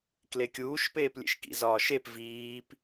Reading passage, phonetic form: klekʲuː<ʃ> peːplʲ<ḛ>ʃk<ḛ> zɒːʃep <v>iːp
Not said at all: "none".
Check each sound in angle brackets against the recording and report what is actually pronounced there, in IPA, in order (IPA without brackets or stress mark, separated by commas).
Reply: ʃ, ḛ, ḭ, v